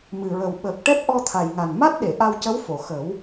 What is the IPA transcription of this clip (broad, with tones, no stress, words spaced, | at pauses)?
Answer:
mɨ˨˩ɹə˨˩wɓəː˨˩k̚ʈɛ˦˥p̚ ʔɔ˧t̪ʰa˨˩jŋa˨˩n ma˦˥t̚ɗe˨˩˨ ʔa˧wcə˧˥w fo˨˩˨ xə˨˩˦w